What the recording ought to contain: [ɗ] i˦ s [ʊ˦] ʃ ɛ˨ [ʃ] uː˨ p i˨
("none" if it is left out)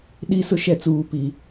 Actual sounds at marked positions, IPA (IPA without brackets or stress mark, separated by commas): ɗ, ʊ˦, t͡s